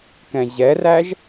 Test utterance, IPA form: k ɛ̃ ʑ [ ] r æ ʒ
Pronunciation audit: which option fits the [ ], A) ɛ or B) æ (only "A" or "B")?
A